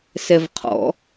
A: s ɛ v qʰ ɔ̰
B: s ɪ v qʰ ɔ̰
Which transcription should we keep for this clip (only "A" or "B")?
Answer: A